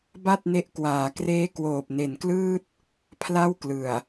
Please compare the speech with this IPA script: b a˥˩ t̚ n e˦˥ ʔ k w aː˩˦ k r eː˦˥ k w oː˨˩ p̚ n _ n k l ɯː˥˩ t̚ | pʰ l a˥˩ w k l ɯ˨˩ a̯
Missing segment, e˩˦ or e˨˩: e˨˩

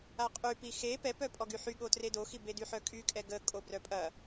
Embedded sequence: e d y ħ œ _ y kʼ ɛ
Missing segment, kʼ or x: kʼ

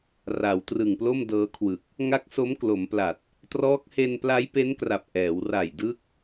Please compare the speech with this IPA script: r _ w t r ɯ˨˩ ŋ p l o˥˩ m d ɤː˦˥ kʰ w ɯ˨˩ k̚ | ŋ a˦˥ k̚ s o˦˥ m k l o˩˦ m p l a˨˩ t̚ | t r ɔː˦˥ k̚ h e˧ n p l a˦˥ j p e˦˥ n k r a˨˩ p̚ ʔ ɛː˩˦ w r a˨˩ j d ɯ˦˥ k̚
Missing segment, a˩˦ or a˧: a˩˦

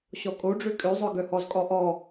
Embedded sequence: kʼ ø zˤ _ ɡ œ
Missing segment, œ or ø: œ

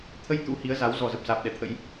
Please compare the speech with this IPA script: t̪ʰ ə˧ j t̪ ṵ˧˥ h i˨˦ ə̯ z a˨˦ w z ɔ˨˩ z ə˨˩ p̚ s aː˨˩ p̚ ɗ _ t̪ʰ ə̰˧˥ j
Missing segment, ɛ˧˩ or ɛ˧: ɛ˧˩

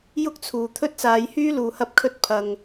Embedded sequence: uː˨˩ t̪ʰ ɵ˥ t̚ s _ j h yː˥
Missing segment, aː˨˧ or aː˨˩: aː˨˧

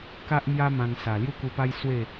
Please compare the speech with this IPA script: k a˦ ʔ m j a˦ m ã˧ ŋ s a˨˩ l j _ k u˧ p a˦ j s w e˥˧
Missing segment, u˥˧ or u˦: u˦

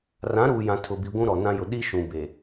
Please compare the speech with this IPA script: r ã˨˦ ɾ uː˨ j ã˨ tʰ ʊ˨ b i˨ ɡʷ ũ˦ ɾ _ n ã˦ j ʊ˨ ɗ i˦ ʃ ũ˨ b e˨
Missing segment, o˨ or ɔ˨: ɔ˨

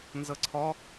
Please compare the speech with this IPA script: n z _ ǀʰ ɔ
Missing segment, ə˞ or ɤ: ɤ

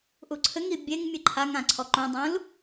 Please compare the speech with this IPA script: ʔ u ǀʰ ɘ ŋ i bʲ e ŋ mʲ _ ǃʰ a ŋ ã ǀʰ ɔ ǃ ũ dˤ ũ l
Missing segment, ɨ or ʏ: ɨ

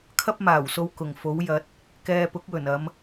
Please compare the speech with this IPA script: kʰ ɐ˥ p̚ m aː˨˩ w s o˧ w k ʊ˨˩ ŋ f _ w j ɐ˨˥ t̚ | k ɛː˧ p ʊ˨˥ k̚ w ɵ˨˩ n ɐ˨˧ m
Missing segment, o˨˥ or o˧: o˨˥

